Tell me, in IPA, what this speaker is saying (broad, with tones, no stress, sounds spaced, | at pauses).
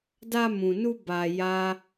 d a˧ m ũ˨ n u˧ b a˧ j a˦